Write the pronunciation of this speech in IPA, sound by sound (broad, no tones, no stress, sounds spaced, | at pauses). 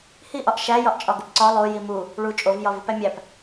h i ʔ ɒ ʔ ʃ æ j ɒ ʔ t͡ʃʼ ɒ ɡ o p ǀ ɒ lˠ o j i m u | ɭ u t͡ʃʼ o v j ɒ v u p æ mʲ æ p